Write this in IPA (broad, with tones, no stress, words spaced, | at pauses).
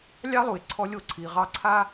lʲɑ˥lˠu˩e̯ ǀʰɔ˧ lʲo˧ǀʰi˩ʁɑ˧ ǀʰa˥